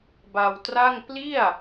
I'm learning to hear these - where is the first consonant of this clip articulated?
lips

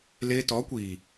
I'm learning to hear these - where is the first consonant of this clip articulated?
tongue tip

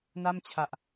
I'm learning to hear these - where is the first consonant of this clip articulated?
tongue tip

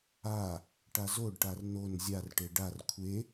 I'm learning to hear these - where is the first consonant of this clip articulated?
retroflex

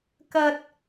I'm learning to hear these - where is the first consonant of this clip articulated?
velum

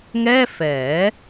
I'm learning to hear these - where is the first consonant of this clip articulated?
velum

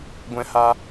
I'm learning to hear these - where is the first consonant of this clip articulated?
velum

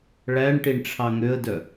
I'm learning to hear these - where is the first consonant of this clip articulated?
retroflex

